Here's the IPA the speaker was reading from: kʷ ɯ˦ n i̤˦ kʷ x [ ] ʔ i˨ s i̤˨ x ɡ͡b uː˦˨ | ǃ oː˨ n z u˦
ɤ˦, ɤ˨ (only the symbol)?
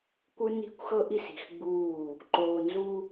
ɤ˦